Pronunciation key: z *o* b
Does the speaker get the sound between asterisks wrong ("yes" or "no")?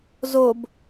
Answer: no